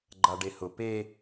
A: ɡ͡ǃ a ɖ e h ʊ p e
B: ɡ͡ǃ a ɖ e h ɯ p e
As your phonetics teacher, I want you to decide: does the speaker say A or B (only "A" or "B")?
A